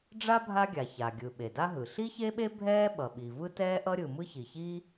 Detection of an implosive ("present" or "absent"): present